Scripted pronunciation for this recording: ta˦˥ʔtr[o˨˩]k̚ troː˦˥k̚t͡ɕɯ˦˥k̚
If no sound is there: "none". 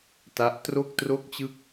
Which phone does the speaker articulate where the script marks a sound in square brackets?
o˥˩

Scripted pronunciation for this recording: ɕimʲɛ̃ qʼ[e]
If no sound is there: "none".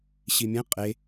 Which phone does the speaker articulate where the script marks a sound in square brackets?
e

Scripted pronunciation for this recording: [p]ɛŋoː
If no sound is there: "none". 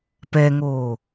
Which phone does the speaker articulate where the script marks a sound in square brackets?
p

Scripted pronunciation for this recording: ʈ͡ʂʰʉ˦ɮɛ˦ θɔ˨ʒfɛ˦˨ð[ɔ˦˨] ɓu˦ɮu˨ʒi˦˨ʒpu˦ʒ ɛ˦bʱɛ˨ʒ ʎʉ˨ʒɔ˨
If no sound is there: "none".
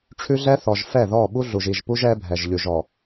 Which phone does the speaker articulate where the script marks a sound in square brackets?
ɔ˦˨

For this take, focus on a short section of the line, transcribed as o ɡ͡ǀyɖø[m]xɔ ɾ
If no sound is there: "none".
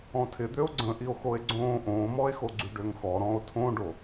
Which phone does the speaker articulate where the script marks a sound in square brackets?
ŋ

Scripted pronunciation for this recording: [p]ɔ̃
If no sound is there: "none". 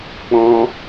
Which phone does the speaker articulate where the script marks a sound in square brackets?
k͡p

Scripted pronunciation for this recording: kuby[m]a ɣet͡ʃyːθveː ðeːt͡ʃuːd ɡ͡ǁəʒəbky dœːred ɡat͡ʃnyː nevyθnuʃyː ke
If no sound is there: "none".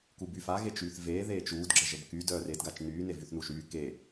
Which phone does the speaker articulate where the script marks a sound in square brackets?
f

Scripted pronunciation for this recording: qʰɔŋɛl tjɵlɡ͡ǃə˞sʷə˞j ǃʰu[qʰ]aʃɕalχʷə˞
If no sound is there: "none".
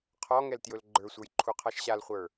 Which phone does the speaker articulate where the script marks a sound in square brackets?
qʰ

